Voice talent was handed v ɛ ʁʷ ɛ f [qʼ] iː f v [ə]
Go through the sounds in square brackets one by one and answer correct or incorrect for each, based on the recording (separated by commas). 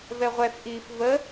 incorrect, correct